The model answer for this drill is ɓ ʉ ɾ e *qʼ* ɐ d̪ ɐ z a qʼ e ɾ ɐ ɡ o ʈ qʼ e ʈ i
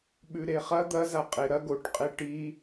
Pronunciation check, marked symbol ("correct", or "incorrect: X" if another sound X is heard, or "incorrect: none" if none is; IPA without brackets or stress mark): incorrect: χ